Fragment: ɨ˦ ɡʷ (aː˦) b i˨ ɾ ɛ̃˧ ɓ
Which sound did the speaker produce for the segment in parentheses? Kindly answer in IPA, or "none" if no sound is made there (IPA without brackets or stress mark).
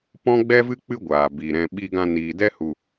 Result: aː˨